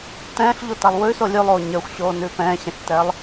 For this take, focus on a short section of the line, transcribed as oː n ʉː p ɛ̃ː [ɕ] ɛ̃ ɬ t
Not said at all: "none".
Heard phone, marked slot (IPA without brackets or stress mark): ɕ